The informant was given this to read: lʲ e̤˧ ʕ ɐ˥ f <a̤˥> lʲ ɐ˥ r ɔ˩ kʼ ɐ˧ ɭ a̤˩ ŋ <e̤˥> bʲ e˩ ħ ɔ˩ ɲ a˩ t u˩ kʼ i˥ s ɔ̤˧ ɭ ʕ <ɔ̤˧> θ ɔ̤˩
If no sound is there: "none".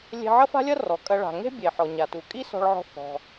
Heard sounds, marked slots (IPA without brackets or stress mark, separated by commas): a̤˥, e̤˥, ɔ̤˧